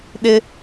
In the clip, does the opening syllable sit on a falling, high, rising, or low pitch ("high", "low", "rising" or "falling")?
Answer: high